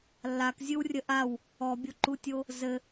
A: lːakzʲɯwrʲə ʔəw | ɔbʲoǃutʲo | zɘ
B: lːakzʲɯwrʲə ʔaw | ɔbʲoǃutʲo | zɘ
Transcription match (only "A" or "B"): B